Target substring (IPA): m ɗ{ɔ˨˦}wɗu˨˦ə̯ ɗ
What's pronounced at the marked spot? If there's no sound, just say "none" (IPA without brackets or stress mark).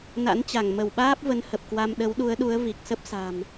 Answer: ə˨˦